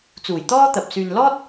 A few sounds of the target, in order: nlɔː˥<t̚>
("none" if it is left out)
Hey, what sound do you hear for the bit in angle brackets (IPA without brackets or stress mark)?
t̚